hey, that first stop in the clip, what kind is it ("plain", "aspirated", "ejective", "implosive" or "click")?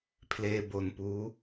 aspirated